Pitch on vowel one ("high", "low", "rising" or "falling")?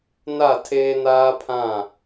falling